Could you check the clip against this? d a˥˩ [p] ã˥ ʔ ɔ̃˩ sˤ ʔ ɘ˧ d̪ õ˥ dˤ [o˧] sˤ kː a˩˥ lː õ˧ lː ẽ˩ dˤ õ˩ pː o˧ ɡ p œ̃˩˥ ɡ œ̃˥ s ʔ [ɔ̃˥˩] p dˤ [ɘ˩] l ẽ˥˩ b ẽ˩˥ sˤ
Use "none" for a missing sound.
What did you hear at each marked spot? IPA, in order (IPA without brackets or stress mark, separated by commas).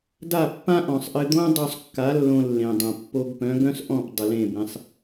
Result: pː, o˧, ɔ̃˥˩, ɘ˩